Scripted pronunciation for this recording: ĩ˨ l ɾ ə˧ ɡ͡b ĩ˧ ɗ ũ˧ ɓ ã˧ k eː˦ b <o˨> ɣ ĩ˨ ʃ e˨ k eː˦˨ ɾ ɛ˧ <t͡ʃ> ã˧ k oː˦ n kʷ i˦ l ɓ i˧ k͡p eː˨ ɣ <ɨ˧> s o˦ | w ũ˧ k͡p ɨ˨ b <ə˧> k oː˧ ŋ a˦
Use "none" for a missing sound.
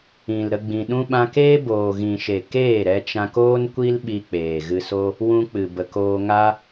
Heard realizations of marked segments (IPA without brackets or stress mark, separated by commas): oː˨, t͡ʃ, ɨ˧, ə˨